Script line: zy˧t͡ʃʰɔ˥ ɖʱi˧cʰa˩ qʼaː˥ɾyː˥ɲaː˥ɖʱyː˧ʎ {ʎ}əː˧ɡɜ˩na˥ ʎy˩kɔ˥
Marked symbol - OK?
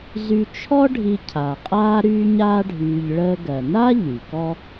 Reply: no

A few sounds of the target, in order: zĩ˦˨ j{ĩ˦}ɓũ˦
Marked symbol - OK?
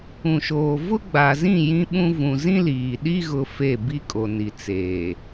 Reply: yes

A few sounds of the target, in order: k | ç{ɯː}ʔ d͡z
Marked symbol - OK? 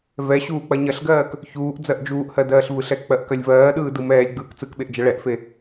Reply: no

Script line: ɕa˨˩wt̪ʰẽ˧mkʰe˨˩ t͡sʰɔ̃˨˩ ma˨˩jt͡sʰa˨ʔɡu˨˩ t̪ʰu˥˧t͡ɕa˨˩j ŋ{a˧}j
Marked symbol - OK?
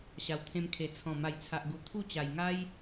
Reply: no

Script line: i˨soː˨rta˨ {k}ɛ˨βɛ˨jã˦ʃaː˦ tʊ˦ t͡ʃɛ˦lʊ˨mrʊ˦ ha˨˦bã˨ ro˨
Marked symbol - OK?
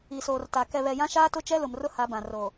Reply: yes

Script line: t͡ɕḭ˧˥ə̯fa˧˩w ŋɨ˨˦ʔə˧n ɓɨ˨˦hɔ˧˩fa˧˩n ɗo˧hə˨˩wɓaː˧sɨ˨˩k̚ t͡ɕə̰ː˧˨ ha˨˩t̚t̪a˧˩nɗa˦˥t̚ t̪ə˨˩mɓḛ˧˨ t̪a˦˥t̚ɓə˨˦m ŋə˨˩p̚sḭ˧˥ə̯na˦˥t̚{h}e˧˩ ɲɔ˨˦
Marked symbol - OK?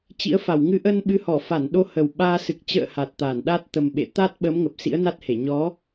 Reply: yes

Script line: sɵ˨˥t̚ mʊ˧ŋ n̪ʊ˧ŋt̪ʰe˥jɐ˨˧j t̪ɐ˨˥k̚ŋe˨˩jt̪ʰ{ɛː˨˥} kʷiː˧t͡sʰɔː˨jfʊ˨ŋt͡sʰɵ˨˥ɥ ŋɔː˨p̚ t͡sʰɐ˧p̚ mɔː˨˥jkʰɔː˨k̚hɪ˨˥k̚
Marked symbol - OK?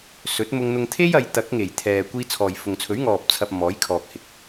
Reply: no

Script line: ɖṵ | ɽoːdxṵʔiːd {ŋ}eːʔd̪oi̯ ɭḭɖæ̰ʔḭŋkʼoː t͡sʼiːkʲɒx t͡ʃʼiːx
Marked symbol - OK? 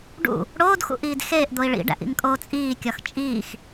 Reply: no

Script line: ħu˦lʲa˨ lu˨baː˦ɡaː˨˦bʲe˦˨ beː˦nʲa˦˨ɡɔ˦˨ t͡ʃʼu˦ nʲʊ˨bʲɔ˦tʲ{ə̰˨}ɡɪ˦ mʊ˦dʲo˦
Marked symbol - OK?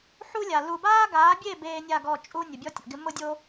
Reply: no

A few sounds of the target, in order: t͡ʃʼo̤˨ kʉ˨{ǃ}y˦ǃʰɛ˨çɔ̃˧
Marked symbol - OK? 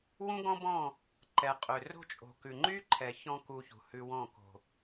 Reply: no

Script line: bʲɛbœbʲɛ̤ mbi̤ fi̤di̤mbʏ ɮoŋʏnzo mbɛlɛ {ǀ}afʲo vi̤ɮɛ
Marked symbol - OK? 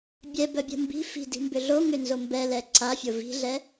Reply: yes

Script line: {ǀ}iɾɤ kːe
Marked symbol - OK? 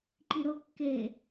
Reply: no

